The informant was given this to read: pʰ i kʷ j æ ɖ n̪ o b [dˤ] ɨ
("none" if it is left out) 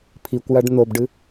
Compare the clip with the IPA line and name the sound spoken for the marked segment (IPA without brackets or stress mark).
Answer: ɖ